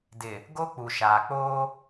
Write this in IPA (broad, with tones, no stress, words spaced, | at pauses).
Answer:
dɪ˨ | ɡo˦ k͡pu˨ʃaː˨k͡poː˦